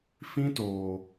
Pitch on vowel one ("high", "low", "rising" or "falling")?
high